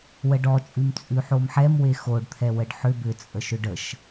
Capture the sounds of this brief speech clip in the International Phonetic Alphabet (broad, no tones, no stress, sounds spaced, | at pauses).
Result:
w ə ɖ ɔ t͡ʃʼ ʉ m t͡sʼ ʉ ħ o m ħ ɛ m w e x o ɖ t̪ʰ ɛ w ə ɖ ħ ʏ b ʏ t͡sʼ ə ʃ ʏ ɖ ə ʃ